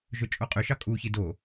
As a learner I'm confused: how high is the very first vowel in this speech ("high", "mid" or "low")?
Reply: mid